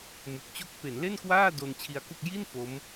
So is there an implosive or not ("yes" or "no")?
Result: no